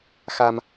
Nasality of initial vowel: oral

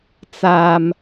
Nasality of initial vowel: oral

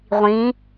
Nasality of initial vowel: nasal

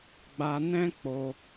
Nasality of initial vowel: oral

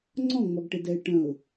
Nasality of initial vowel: nasal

